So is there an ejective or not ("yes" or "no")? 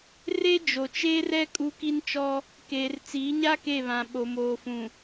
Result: yes